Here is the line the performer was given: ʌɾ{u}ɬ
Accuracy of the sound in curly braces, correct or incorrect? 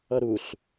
correct